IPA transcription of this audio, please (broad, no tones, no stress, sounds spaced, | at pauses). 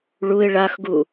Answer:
ɭ u ɪ̯ ɭ a x ɡ u